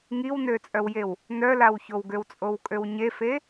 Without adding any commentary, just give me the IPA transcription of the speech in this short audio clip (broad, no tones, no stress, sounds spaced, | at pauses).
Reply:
ŋ i w n ø t͡sʼ œ w j e w | n œ l a w ç o w ɡ ø w t͡sʼ o w kʼ ø w ɲ e f e